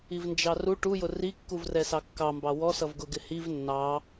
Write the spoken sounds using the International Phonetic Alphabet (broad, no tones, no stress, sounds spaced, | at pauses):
i v n d͡ʒ ɑ r u ʈ u j ʊ r i kː u v r ɛ s ɑ kː ɑ m b ɑ w ɔ s ʌ v ɡ ʊ ɡ ɪ h i v nː ɑ